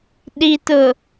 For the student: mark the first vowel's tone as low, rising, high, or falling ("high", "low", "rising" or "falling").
low